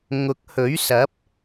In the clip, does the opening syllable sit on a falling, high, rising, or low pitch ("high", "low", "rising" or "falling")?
rising